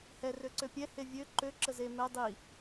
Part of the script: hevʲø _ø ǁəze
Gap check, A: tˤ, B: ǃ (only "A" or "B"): B